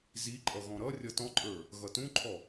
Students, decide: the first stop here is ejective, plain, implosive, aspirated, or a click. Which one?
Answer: click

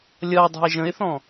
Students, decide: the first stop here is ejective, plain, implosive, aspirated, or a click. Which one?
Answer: plain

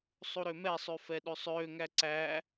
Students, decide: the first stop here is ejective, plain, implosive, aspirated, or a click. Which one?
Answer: implosive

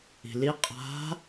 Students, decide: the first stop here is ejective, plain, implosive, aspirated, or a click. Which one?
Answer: ejective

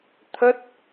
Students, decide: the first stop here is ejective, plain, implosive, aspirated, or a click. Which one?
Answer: aspirated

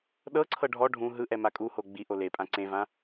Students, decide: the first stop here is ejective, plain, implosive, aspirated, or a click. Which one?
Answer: implosive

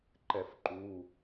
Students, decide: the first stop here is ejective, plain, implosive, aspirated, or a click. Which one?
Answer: click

